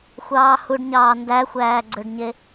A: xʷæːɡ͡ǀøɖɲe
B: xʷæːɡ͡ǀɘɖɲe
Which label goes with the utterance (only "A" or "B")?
A